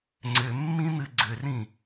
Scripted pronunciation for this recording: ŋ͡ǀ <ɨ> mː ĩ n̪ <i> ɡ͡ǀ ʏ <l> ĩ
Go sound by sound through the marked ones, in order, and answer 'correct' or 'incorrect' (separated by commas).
incorrect, incorrect, incorrect